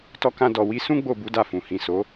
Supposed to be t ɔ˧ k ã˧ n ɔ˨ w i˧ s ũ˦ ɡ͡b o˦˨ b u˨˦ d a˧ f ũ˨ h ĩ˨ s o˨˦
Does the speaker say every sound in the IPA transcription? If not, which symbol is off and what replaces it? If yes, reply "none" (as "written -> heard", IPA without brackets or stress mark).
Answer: n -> d